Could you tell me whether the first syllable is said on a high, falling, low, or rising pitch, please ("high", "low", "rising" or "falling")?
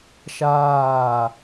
falling